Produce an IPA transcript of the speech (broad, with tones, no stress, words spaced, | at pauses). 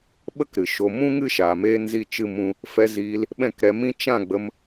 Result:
ɓə˦kɾɨ˨ ʃo˨mũ˦ŋɨ˦ ʃaː˨meː˦nzi˦˨ t͡ʃɨ˦mũ˦ | fɛ˧ziː˧l | ɓɛ̃˦˨kɾɛ˧mĩ˦ t͡ʃã˦˨ɡ͡bə˧m